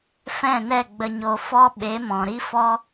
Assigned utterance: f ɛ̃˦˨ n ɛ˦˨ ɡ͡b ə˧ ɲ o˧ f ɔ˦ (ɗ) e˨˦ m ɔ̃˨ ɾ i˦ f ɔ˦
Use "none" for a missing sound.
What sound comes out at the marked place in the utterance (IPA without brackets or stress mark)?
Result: ɓ